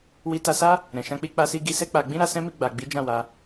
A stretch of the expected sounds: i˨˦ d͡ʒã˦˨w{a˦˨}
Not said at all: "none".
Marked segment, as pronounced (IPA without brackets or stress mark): a˧